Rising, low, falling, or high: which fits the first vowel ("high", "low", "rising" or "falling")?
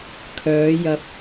rising